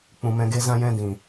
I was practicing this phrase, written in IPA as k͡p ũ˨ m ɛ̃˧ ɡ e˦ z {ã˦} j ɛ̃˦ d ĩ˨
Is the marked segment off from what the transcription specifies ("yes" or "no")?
no